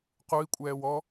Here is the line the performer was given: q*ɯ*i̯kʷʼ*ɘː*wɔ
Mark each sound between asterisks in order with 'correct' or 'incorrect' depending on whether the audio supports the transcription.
incorrect: u, incorrect: ɛː

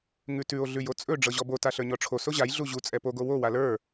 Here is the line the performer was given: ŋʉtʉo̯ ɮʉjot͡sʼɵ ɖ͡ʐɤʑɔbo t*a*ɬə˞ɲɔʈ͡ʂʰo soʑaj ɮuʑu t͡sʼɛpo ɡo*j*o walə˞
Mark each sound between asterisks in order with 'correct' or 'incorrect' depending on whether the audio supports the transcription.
correct, incorrect: w

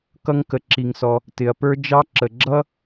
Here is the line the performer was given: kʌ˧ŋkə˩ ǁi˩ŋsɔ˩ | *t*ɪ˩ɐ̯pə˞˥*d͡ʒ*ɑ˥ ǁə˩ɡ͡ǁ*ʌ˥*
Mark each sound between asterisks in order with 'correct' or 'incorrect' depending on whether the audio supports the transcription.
correct, correct, correct

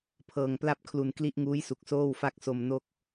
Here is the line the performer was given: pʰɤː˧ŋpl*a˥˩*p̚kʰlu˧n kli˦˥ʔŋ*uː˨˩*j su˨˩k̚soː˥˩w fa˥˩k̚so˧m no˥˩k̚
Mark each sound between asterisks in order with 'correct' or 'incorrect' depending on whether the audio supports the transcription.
correct, incorrect: uː˦˥

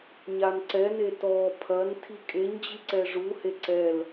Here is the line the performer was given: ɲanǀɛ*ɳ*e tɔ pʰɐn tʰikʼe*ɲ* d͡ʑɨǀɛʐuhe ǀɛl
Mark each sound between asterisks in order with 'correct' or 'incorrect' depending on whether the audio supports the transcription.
incorrect: n, correct

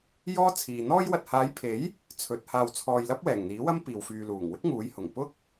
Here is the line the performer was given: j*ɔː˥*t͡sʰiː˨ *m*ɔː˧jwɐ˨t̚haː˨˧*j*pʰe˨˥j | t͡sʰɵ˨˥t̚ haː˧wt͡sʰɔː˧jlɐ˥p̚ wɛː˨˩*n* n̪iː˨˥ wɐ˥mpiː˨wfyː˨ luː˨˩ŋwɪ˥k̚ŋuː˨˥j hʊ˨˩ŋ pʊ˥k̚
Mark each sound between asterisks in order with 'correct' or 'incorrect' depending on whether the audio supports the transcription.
correct, incorrect: n̪, correct, incorrect: ŋ

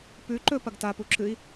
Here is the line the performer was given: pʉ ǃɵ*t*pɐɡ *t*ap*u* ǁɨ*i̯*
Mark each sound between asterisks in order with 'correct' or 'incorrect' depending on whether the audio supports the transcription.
incorrect: none, correct, correct, correct

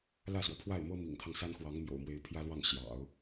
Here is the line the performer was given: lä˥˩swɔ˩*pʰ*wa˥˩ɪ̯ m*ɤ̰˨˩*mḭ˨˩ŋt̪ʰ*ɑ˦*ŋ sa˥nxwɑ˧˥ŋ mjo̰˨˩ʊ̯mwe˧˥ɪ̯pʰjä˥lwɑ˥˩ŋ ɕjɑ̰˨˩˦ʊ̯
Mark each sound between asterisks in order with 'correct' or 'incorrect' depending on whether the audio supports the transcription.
correct, incorrect: ɤ˥, correct

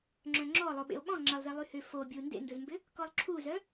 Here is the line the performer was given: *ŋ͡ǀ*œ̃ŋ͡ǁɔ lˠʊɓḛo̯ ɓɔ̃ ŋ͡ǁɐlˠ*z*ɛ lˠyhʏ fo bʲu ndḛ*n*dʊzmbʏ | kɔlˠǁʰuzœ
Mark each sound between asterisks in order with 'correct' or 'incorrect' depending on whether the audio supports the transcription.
incorrect: ŋ͡ǁ, correct, correct

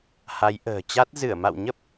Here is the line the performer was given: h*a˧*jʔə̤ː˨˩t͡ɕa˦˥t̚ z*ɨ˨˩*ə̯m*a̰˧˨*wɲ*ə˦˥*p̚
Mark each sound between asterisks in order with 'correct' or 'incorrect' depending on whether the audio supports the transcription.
incorrect: a˨˦, incorrect: ɨ˧˩, correct, correct

